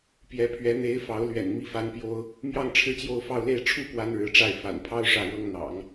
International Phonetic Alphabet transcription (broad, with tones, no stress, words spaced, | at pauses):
pjɛ˧˥pʰɥɛ˧˥ n̪e˧˥ɪ̯ fɑ˧˥ʊ̯lɥɛ̰˨˩n mi˥˩fa˥npjo˥ʊ̯ | mjɑ˥˧ŋ ʈ͡ʂʰɻ̩˥˧t͡ɕjo˥˧ʊ̯ fɑ˥˧ʊ̯le˥˧ɪ̯ ʈ͡ʂʰu˥˩ pwa˥nɻɻ̩˧˥ʈ͡ʂa˥˩ɪ̯ fa̰˨˩npʰɑ˥ʊ̯ ʂä˥˩ɻɤ˥ŋ n̪ɑ̰˨˩˦ŋ